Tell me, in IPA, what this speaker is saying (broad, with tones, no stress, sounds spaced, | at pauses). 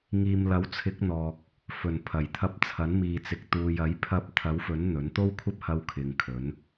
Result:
ŋ iː˨ m l ɐ˨˥ w t͡sʰ ɪ˨˥ k̚ n̪ ɔː˨ k̚ | f ɵ˨˩ n pʰ ɐ˨˩ j t̪ʰ ɐ˧ p̚ t͡sʰ ɐ˨˥ n m iː˨ t͡s ɪ˨ k̚ t̪ uː˨ j ɐ˨˥ j pʰ ɐ˧ p̚ t̪ʰ ɐ˨˥ w f ɵ˨˥ n n̪ ɵ˨˥ n t̪ o˥ w kʷʰ ɐ˥ p̚ h ɐ˧ w kʰ ɪ˨˧ ŋ kʰ ɵ˨˥ n